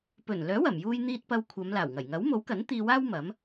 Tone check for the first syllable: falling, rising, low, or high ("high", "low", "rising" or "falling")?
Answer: low